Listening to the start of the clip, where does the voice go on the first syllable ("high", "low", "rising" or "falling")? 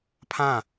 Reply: falling